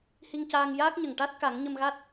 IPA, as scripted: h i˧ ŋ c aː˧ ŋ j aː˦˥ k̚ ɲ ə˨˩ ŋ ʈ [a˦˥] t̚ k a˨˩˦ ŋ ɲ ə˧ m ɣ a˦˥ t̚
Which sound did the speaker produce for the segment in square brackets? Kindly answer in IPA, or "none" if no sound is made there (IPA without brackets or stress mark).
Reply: a˦˥